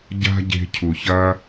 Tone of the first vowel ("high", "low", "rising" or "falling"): high